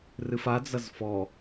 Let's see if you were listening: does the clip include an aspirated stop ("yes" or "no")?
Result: no